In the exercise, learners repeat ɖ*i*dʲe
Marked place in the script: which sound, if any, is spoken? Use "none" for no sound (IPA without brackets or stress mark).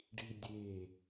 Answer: i